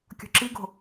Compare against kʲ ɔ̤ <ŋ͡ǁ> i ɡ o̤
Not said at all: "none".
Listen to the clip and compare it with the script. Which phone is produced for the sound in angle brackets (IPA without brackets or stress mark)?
ǁ